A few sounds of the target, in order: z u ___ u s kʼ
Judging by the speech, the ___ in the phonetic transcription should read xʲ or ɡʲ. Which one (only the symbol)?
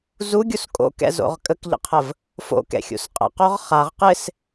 ɡʲ